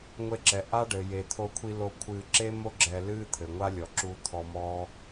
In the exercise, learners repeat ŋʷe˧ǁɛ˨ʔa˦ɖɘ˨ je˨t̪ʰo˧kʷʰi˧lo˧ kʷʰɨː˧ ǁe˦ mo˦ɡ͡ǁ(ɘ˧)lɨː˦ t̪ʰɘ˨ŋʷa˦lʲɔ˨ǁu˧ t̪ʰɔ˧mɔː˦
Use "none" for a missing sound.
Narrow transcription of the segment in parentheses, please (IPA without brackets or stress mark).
ɛ˧